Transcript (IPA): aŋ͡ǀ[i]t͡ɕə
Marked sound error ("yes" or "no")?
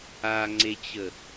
yes